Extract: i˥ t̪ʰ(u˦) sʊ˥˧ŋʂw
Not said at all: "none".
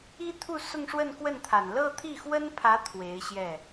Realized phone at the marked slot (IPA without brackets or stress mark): u˥˧